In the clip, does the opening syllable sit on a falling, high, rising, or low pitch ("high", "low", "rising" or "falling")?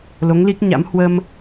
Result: rising